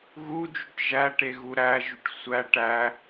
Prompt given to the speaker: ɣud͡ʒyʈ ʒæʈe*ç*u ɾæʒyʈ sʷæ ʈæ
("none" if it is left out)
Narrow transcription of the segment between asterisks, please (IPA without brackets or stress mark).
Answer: ɣ